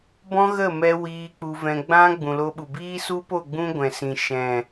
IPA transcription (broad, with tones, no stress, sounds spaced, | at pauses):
b ɔ̃˦ ɣ ə˦˨ m ɛ˧ w iː˧ k͡p u˧ v ɛ̃˧ ɡ͡b ã˦ ɡ͡b ũ˨ l o˧ ɓ u˨ b iː˦ s u˦ p o˦˨ ɡ͡b ũ˦ ɡʷ ɛ̃˨ s ĩ˨ ʃ ɛ̃˨